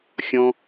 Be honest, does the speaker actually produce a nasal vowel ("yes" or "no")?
yes